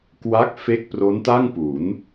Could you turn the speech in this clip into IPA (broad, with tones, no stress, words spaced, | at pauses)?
kwa˦˥k̚fe˦˥k̚ pro˦˥nta˥˩ŋpu˩˦n